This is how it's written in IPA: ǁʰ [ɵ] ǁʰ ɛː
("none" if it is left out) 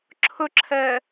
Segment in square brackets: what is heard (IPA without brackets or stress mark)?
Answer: ɵ